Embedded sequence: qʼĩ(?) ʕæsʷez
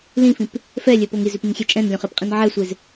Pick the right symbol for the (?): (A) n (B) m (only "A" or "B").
A